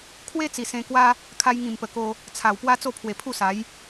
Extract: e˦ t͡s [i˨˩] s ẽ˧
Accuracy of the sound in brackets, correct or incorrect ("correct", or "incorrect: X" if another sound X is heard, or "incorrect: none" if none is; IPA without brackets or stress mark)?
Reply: correct